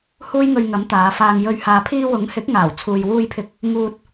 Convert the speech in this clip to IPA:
h uː˥ j ŋ ɵ˧ ɥ ŋ ɐ˨˥ m t̪ aː˨˧ f aː˨ ŋ j ɵ˧ ɥ h aː˨ pʰ iː˧ w ʊ˨˥ ŋ h ɪ˨˥ k̚ ŋ aː˨˩ w t͡sʰ uː˨ j w uː˧ j pʰ ɪ˧ k̚ | ŋ uː˧ t̚

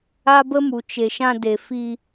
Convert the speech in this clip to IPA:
a˦ b ə˦ m u˨ t͡ʃ e˨ ʃ ã˧ d e˨ f i˧

